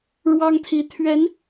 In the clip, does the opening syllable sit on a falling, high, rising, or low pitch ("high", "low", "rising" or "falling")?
high